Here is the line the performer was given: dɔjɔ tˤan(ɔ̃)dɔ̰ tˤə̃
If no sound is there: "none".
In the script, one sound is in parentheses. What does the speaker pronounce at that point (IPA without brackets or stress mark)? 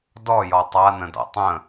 ə̃